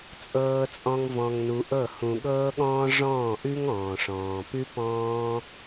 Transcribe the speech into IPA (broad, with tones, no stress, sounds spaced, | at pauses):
t͡sʼ ɤː˧ t͡sʼ ɔ̃˧ ŋ v ɔ̃˧ ŋ n u˧ ʔ ɤ˦˨ h ũ˨ ɠ ɤː˦ ɠ ɔ̃ː˦ ʐ ɔ̃ː˦˨ ʔ ʉ˦ ŋ ɔ̃ː˨ ʂ ɔ̃ː˨ p ʉ˦ p ɔ̃ː˦